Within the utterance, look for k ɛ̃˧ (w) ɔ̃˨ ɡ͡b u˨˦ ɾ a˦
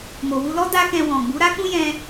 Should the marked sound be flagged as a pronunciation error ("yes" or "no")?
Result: no